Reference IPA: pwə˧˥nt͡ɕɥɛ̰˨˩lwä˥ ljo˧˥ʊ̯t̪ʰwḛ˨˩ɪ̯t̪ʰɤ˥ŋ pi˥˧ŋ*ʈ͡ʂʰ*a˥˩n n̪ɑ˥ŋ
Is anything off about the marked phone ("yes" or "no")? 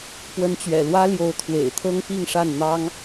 yes